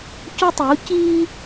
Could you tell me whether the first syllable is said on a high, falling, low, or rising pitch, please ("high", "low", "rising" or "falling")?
high